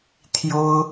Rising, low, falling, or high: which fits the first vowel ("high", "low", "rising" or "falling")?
high